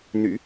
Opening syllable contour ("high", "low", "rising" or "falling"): low